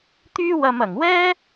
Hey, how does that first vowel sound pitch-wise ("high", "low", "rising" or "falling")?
high